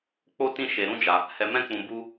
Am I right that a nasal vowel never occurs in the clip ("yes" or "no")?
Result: no